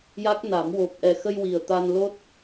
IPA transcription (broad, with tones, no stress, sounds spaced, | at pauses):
j a˦˥ k̚ n a˨˩˦ m w o˨˩ p̚ ʔ ɛ˨˩ x ə˧ j w i˨˩ ə̯ t̪ a˧ n l o˦˥ t̚